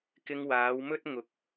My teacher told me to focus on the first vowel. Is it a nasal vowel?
no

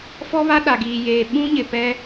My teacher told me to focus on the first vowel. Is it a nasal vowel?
no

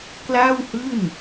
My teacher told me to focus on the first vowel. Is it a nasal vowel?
no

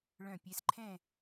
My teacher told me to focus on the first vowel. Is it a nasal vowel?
yes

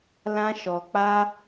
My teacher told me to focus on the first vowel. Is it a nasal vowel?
yes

